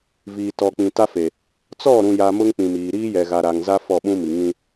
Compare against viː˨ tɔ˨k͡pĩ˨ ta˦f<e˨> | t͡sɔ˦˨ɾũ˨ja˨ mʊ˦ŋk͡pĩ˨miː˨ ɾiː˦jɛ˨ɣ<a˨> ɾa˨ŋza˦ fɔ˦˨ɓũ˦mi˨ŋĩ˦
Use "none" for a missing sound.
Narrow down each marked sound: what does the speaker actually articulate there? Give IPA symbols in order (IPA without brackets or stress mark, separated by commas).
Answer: e˨, a˨